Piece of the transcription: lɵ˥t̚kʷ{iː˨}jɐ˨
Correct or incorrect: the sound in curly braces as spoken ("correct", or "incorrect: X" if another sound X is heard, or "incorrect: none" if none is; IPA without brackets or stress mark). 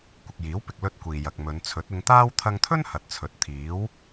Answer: correct